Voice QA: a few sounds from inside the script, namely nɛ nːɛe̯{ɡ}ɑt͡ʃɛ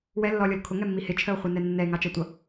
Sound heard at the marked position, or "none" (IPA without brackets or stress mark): ŋ